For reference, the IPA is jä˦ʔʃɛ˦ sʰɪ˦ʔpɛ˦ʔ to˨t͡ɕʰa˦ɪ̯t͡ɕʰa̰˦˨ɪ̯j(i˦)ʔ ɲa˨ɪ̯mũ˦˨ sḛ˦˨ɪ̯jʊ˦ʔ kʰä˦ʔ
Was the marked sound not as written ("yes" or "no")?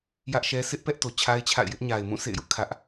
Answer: yes